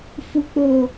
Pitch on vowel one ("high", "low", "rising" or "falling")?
low